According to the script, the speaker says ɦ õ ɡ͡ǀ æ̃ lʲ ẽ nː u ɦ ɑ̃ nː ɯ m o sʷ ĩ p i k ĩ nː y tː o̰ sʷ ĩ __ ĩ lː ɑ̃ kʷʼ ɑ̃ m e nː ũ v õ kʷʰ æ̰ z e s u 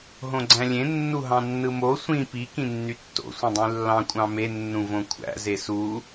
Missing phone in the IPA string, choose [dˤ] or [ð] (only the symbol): dˤ